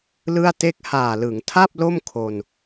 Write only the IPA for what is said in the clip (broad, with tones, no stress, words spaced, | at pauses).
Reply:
lɯ˥˩a̯ te˦˥k̚haː˨˩lɯ˩˦ŋtʰa˥˩p̚ lo˥˩m kʰo˧n